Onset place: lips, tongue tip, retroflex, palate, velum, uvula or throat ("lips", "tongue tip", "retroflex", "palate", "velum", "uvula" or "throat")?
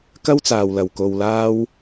velum